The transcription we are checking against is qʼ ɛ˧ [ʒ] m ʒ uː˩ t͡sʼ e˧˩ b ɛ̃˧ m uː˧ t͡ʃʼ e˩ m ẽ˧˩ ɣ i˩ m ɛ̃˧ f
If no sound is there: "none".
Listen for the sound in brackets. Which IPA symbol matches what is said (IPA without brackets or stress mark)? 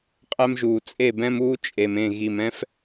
none